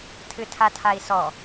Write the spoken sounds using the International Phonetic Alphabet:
tʰɨtʰatʰai̯sɔ

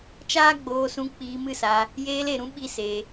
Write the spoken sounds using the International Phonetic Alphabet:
t͡ʃaː˦ɡ͡boː˧ sũ˧ k͡piː˧mɨ˦˨sa˧ | jeː˧le˨ɾũ˧ ɓi˦se˧

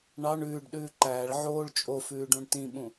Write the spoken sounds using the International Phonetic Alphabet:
ɳɑɳ ʉːɖɗʉː ǃæːɭ ʕoːɭ t͡ʃʼofʉːɖũɳ tĩɓũ

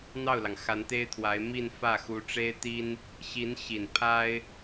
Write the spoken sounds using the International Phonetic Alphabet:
n̪ɑ˥˩ʊ̯lɑ˩ŋ xa˧˥nt̪e˥ɪ̯t̪ʰwa˧˥ɪ̯mi˥˧n fä˥˩ xu˧˥ʈ͡ʂe˥ɪ̯t̪i˥n | ɕi˧˥nɕi˨˩n pʰa˥ɪ̯

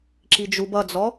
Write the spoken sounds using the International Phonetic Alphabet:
ǁid͡ʒub ʌd͡zɔ

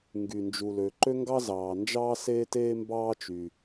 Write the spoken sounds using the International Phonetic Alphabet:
ŋɡy˩ nd͡ʒu˩lø˩ ǃø˥ŋɡɑ˥zɑː˩nd͡ʒɑː˥ seː˥teː˥mbɑː˥ t͡ʃy˩

